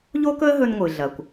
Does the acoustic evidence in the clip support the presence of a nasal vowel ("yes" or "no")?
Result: no